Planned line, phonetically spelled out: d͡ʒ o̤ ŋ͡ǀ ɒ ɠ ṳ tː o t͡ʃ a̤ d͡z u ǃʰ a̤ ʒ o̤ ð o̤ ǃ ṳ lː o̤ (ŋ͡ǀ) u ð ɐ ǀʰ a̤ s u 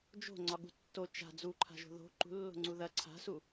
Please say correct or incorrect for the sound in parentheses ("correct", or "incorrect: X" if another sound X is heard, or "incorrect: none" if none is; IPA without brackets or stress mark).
correct